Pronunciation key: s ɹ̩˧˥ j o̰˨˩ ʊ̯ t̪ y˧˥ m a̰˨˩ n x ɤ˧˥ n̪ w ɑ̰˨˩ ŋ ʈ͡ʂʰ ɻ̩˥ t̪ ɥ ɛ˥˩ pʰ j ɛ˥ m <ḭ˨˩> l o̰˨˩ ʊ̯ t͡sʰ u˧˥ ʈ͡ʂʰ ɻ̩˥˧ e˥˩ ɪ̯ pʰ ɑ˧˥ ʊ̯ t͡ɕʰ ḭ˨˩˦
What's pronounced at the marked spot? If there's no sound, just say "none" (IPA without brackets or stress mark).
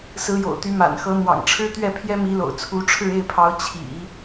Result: i˧˥